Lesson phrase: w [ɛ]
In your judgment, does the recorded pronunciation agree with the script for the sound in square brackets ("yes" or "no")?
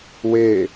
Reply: no